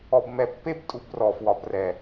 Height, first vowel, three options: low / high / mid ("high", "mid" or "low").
mid